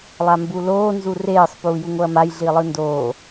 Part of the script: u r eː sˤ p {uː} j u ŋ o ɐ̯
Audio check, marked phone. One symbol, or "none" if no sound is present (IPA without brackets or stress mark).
uː